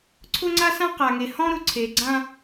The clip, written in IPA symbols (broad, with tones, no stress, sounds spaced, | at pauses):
ǀʰ ʊ˦ ŋ͡ǀ a˦ s ã˦ q a˨ ŋ e˨ h ɔ̃˦ ɾ ʊ˨ ǀʰ e˨ ɡ͡ǀ ã˦